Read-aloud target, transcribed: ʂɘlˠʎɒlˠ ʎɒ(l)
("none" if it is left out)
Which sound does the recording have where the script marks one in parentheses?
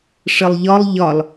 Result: l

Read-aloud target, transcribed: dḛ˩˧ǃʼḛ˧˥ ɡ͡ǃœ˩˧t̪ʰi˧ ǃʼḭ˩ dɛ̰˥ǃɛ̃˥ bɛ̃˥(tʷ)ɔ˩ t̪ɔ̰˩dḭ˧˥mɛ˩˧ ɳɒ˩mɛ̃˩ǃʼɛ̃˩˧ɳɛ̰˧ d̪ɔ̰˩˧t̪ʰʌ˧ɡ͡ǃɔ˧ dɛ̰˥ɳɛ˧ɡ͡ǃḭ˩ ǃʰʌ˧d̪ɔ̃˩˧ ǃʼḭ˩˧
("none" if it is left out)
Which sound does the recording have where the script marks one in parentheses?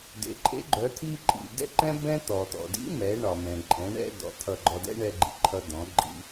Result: t̪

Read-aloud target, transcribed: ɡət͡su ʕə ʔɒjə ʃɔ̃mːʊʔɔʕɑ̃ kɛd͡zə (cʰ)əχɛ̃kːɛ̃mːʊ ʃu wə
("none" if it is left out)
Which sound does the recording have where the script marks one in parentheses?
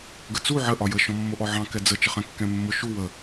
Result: t͡ʃ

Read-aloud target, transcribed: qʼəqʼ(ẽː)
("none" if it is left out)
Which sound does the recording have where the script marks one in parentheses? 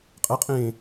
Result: ẽː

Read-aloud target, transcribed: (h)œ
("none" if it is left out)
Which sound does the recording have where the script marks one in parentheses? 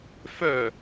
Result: f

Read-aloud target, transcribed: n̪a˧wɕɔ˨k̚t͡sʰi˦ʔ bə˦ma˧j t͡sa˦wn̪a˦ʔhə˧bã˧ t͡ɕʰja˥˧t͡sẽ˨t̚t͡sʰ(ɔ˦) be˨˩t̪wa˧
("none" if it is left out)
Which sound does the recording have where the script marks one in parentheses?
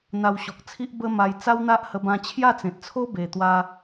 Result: o˦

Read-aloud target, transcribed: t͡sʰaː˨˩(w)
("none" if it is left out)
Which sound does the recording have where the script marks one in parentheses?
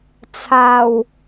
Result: w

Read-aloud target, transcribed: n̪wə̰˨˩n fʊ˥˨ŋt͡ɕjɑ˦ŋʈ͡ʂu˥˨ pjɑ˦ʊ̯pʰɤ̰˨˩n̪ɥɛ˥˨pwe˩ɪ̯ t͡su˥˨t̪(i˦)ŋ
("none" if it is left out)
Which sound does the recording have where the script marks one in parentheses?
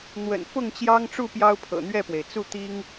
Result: i˦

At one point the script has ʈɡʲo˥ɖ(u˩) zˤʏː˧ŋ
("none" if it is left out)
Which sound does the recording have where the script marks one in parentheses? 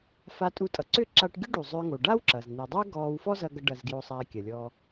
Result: u˩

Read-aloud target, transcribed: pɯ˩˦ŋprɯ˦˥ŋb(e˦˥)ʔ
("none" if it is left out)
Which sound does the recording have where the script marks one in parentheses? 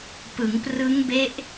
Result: e˦˥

